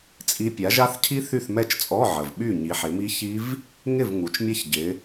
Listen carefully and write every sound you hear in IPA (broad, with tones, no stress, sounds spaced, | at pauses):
t͡sʼ i˦˥ pʲ a˨˦ ʒ a˦˥ θ cʰ i˦˥ θ y˥˨ θ m ɛ˥˨ t͡ʃ t͡sʼ ɔ˧˥˧ ʕ ə˨˩ v ɓ y˥˨ ɲ i˨˦ ħ ɪ˨˦ m i˦˥ ç i˦˥ v | ŋ ɪ˥˨ v ŋ u˨˦ t͡ʃ mʲ ɛ˦˥ ç ɟ ɪ˨˦